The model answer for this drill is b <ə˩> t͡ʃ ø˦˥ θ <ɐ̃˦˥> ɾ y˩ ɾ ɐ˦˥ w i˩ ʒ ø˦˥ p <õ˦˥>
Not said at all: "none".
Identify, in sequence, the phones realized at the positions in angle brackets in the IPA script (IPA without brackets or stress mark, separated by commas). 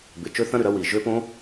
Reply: ɪ˩, ɐ̃˦˥, õ˦˥